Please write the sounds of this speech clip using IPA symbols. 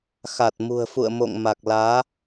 xa˨˩t̚mṳ˨˩ə̯fṵ˧˨ə̯mo̰˧˨ŋ ma˨˩k̚laː˨˦

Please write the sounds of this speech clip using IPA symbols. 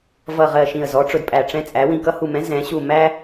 vʌ˧˩ʁɜ˧˩ ʃĩ˧˩ə̯zɔ˨˥ʈ͡ʂʊ˧˩d pʼæ˧˩ʈ͡ʂɛ̃˦t͡sʼæ˨˥ wĩ˧˩kʌ˦hu˧˩mɛ̃˨˥ zɛ̃˨˥ ɕu˧˩mæ˦

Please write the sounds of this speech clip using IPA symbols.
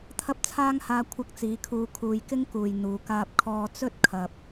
t̪ʰɐ˥p̚t͡sʰaː˥ŋhaː˧ kʷʰɐ˥k̚t͡siː˨˥kʰuː˧ kʰuː˨jkɪ˥ŋkuː˨˩j n̪uː˨˩kaː˧p̚kʰɔː˧ t͡sɵ˥t̚kʰɐ˨p̚

